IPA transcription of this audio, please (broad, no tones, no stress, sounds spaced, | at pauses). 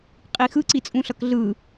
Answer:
qʼ i x ɯ ǀ i t͡sʼ ũ ɬ ʌ k ɮ ɯ